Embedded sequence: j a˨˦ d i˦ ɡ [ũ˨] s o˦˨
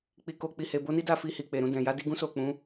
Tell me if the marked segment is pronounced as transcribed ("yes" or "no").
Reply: no